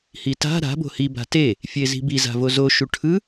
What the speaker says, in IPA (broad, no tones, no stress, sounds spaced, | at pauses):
h i t a̤ ɾ a̤ b o̤ h i b a̤ t e | fʲ e z i̤ b i z a̤ v o z o ʃ u ʈʰ ɯ